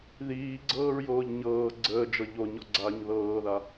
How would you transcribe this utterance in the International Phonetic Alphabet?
ðiːɡ͡ǀɤːɹjoːʎ ɲɤː ɡ͡ǀəːd͡ʒɤ ʎoɲɔɡ͡ǀaːɲ ðɤːða

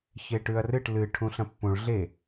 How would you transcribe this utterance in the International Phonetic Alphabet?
çeʈʉɐ̯rɨʈ lɨ ʈʰũɬɐ̃pːũɭ ɮe

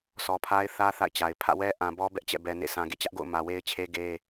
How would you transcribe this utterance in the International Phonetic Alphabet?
sʰɔ˨pʰa˦ɪ̯θä˦ θa̰˦˨ɪ̯t͡ɕa˨ɪ̯ pʰä̰˦˨wɛ˦ʔã˨ bɔ˦bɛ˦ʔt͡ɕɛ̰˦˨bɛ˨ nḛ˦˨ sã˨ɡḛ˦˨ t͡ɕä˦ʔɡo̰˦˨ʊ̯ mä˨we˦ɪ̯t͡ɕʰe˦ ɡe˦

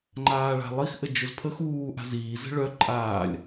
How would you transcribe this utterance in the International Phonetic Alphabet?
ŋ͡ǃaːɭa̤lˠixʔə d͡ʒʊzpʰəx uː ʔa̤ziː zə̤ɭœ ǃʼaːlʲ

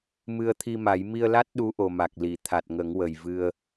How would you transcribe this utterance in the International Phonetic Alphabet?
mɨ˧ə̯t̪ʰi˧ma˨˩˦j mi˧ə̯la˦˥t̚ ɗu˧˥ʔo˨˩ma˨˩k̚li˨˩˨ t̪ʰa˨˩t̚ŋə˨˩˦ŋwə˨˩jvɨ˧ə̯

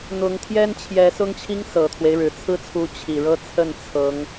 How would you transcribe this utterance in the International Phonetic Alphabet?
n̪ʊ˧˥ŋ t̪ʰjɛ˥nt͡ɕʰjɛ˧˥ sʊ˥ŋt͡ɕʰi˥ŋ sɤ˨˩t̪ʰwe˦ɪ̯ɻɻ̩˨˩ t͡sʰɹ̩˥˩t͡sʰu˧˥ t͡ɕʰi˨˩ɻɤ˥ t͡sʰə˥˩n t͡sʰɤ˧˥ŋ

